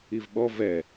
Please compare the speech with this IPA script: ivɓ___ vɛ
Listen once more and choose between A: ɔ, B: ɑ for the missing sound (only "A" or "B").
A